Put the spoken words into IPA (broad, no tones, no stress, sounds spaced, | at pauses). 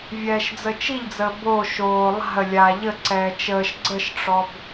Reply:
vʲ ɛː ʃ d͡z ə t͡ʃ i ʎ d͡z əː b o ʃ oː lˠ a̤ ə̯ lʲ aː ʎ ə ǀ ɛː t͡ʃ əː ʃ ɡ͡ǀ ə ʃ ʈ͡ʂ ɔ b